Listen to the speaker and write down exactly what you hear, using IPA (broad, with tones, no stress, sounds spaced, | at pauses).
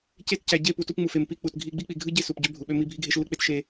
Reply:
c e˦˨ t c æ˨ ɟ e˦˨ p u˨ t u˦ p ŋ͡m u˨ f e˨ m p i˦ k͡p u˨ t ɡʱ i˦ ɡ͡b i˦ k͡p i˨ ɡʱ ɯ˦ ɟ e˦ s u˨ p ɟ ø˦ bʱ u˨ ɓ ø˦ m i˦ bʱ i˦ ɡʱ e˦ ʃ lː ɯ˦ k͡p e˦ t ʃ e˦